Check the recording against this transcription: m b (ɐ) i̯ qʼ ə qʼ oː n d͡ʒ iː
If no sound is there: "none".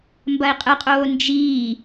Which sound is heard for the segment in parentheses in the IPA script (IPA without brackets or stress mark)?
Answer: ɐ